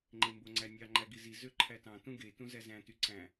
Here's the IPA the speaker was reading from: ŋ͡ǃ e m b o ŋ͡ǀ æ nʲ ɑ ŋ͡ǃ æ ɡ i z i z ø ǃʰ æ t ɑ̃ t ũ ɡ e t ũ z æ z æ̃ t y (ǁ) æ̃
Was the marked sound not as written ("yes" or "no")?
yes